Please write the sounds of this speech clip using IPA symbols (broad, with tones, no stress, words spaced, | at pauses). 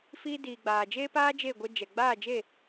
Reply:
fiː˧diː˨ ɡ͡baː˨d͡ʒeː˦paː˦ d͡ʒe˦˨ɡʷɛ˧d͡ʒɛ˨ ɡ͡baː˦˨d͡ʒe˦˨